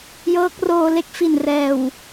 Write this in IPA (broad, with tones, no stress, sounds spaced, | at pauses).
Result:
j ɤː˦˥ k̚ r oː˧ l e˥˩ k̚ f i˨˩ n r ɛː˨˩ w